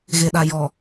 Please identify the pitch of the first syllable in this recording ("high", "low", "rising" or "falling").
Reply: low